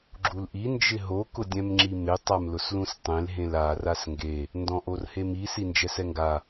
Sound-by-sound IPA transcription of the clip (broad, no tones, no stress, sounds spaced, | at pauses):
ɡ͡ǁ u l ʔ i n d͡ʒ ɪ ɦ o k ʊ dʲ ɛ̃ m ŋ͡ǁ i m ɪ tˤ a m l ʊ s l ũ s tˤ ẽ l ɦ ẽ l a r a s ŋ ɡ e | n d ɔ̃ ʔ o r h e m i s i n d͡ʒ ɛ s ɛ ŋ ɡ a